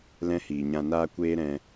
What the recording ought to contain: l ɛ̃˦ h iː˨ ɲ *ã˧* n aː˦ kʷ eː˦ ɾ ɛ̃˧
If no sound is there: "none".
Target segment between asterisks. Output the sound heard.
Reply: ã˧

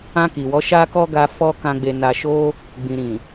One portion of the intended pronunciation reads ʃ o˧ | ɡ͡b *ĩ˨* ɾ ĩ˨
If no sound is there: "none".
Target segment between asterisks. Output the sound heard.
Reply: ĩ˨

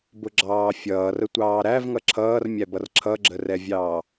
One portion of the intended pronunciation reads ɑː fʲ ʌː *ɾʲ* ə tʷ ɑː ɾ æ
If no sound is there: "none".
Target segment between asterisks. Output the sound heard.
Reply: r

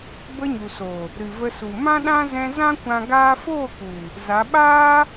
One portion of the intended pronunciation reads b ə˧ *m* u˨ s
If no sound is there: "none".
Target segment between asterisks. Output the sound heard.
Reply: ɲ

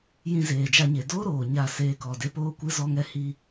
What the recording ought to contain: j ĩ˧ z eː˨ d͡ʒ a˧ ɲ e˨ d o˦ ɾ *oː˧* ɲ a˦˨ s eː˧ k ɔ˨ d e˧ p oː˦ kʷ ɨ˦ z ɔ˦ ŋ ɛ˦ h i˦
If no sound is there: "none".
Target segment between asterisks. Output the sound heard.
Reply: oː˨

